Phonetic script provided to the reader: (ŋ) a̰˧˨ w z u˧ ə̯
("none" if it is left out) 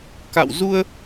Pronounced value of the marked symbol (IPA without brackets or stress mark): k